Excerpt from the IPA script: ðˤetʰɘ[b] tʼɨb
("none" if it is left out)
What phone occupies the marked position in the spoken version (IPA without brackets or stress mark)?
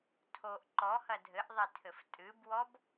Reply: f